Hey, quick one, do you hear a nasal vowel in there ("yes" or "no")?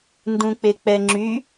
yes